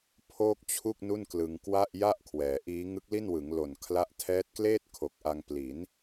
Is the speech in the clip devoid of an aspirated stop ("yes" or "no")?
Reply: no